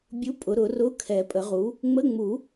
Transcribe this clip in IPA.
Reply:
bʲ u˧˥˧ pʼ ʊ˨˩˦ ɾ ʊ˨˩˦ r ʊ˧˥˧ kʰ ɛ˨˩˦ pʼ ə˨˩˦ ʁ u˩˥ | ŋ͡m ə˧˥˧ ŋ͡m u˨˩˦

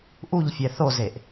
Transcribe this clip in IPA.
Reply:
ʔ u ʎ fʲ ɛ θ o z e ʔ

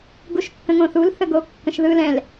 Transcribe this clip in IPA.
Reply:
ɡ u ʃ kː ə̃ ŋ õ θ u l θ ə ɡ o kː ə̃ ʃ ð ɯ l ɛ̃ l

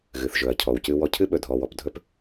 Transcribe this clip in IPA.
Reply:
ɣ ɨ˩ θ ʒ ɵ˩ ɐ̯ cʰ ɔ˩ w c ɨ˧ w ɔ˧ cʰ ɨ˥ ɓ ɵ˩ dʱ ɔ˩ w ɔ˩ p dʱ ɵ˧ p

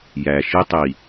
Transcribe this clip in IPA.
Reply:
j æ˨ ʃ i˦ tˤ i˨

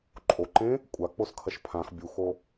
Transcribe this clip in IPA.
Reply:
ǃʼ o ǃ ẽ | kʷʼ a k͡p o s kʰ ɐ ʃ pʰ ã x bʲ u x o

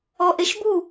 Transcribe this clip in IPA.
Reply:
ɔ ʔ e ʃ b u

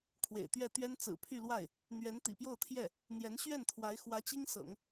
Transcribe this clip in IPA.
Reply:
kʰ w ḛ˨˩ ɪ̯ t̪ ɥ ɛ˥˩ t̪ ɥ ɛ˥ n t͡s ɹ̩˨˩ pʰ y˥˧ l w a˥˩ ɪ̯ | n̪ ɥ ɛ˧˥ n t̪ ḭ˨˩ p j o˥˧ ʊ̯ t̪ʰ j ɛ˥˩ | n̪ j ɛ˧˥ n ɕ ɥ ɛ˥˩ n t̪ʰ w a˧˥ ɪ̯ x w ä˧˥ t͡ɕ i˥ ŋ s ɤ̰˨˩˦ ŋ

